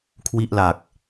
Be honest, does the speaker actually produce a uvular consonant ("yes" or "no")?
no